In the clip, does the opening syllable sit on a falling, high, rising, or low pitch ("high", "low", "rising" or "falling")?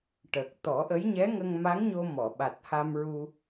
low